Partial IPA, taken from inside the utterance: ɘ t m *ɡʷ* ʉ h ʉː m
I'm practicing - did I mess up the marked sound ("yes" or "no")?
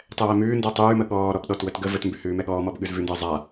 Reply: yes